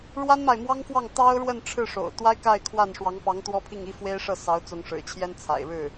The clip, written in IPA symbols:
ɻ w a˥ n m a˨ ɪ̯ m w ɑ˥ ŋ f w ɑ˥˩ ŋ t̪ ɑ˥ ʊ̯ ɻ w ə˥˧ n ʈ͡ʂʰ ɻ̩˥˩ ʂ o̰˨˩ ʊ̯ t̪ w a˥ ɪ̯ k a˥˧ ɪ̯ kʰ w a˥˩ n ʂ w ɑ˧˥ ŋ p ɑ˧˥ ŋ t̪ w ɔ˥ pʰ i˥˩ ŋ i˥ f w e˥ ɪ̯ ʂ ɤ˥˩ s ɑ˧˥ ʊ̯ t͡s ʊ˧˥ ŋ ʂ ɻ̩˨˩ t͡ɕʰ j ɛ˥ n t͡sʰ a̰˨˩ ɪ̯ ɻ ɻ̩˥˩

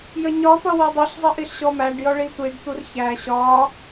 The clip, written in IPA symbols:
j ə ɲ ɒ t̪ ʌ w ɔ dˤ i ɬ zˤ ə ʔ i ɬ ɕ ɔ m æ ɖ j ɔ ɭ i tʷ i ɖ t̪ u r ç æ ɕ ɒ

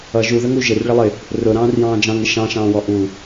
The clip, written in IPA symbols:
ʌ ʒ u ð ə ŋ u ʒ ɪ r ɭ ɪ lˠ ɪ | r ʊ ɾ ɑ̃ː r j ɑ̃ː d͡ʒ ɑ̃ ŋ ɪ ʃ ɑ̃ ʃ ɑ̃ː w ɔ ʔ u

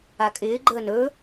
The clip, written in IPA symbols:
a kʼ ɪː ɡ͡ǃ əː n ɵ

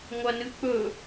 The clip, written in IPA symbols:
ŋʷ ɐ n ɨ k͡p ɵ

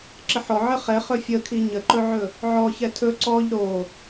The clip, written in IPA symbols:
ǁ ə ħ ɔ ʕ ə χ ɛ χ ɵ fʲ ə kʰ i ɲ ə ǃ ɵ ʕ ɵ | ʕ ɔ ç ɛ tʰ ɵ ǀ ɔ ʎ ɾ o

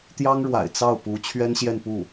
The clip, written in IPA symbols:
t̪ j ɑ˥ ŋ ɻ w a̰˨˩ ɪ̯ t͡s ɑ˥˩ ʊ̯ p u˧˥ t͡ɕʰ ɥ ɛ˥ n ɕ j ɛ˥˧ n p u˥˩

